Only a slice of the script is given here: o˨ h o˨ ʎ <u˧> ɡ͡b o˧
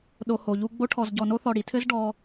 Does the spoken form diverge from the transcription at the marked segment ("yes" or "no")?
no